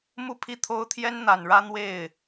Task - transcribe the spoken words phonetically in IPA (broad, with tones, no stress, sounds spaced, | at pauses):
m u˥˧ pʰ i˥˩ t̪ʰ o˥ ʊ̯ t̪ʰ j ɛ˥ n n̪ a˨˩ n ɻ ä˥ n̪ w e˥˩ ɪ̯